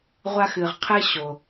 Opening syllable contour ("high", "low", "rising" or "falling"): high